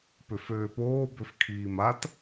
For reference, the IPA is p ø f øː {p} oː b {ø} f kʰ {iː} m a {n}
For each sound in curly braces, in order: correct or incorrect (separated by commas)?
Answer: correct, correct, correct, incorrect